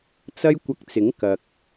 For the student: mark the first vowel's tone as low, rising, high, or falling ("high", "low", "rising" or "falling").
high